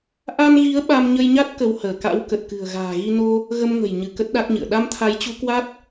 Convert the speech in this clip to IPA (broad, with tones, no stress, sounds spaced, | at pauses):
ʔ a˧ n ɣ i˨˦ ə̯ ɓ a˧ m ɲ ə˧ j ɲ a˦˥ t̚ k ə˨˦ w h əː˧˩ k a̰˧˥ w k ə˨˩ t̚ k ɨ̤˨˩ ə̯ ɣ a̤ː˨˩ ɣ i˧ n o˧ | ɣ ə˧ m ŋ ə̤˨˩ j ɲ ɨ˧˩ k ə˦˥ t̚ ɗ a˦˥ k̚ ɲ ɨ̰˧˨ ə̯ ɗ a˧ m t̪ʰ a˨˦ j t͡ɕ u˨˦ k w a˦˥ t̚